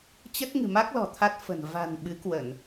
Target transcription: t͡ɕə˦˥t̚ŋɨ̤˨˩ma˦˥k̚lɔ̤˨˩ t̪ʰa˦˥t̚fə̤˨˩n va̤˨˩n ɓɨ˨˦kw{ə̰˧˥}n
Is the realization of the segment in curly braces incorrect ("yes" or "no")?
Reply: yes